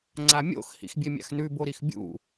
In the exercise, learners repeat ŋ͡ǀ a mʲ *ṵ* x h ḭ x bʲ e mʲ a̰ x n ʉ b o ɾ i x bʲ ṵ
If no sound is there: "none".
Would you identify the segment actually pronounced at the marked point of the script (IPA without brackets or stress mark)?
o̰